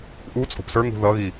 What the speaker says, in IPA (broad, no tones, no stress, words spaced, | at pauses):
ʔu t͡sʼo̤psə˞ŋṳ ðʌɣi